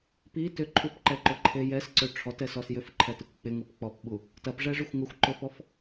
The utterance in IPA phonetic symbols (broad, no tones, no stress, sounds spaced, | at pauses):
p i t ʏ ǃʰ u p ǃ ɛ ǃ ʊ ǃʰ e j ɛ s ǀ ø ʈ͡ʂʰ ɔ t ɛ s ɔ s j ʏ f ǃʰ ɛ t i kʷ k͡p ɪ ŋ u p k͡p ɔ p ɓ u | t ɐ p ʐ ɛ ʐ ʏ xʷ ŋ ʊ xʷ ǃ ʏ f ɔ f